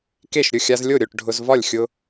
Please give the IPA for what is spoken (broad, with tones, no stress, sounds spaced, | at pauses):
k e˥˨ ʃ ɾʲ ʊ˥˨ xʲ a˦ z lʲ o˥˨ ɾʲ o˥˨ ʈ ɖʱ ʊ˦ z v ɒ˥˨ lʲ xʲ ʊ˦